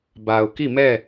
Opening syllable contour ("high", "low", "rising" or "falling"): low